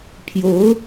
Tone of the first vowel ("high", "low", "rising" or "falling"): rising